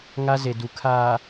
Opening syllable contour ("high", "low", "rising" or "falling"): high